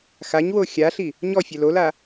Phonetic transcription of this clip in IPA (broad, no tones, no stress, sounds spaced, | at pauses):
x a ɲ w o xʲ a ɬ i | ɲ ɔ fʲ ɛ l o l a